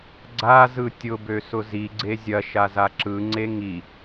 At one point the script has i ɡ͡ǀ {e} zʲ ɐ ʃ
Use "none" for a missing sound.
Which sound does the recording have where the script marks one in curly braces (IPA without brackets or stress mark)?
e